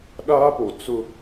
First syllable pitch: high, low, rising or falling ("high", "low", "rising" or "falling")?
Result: high